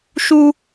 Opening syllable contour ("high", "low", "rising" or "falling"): high